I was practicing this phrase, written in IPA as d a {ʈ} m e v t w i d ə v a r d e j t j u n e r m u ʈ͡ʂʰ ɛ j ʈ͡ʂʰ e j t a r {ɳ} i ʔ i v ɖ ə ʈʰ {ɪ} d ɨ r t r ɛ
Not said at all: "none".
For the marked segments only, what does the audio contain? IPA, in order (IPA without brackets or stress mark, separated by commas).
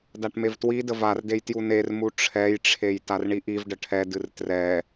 ʈ, ɳ, ɛ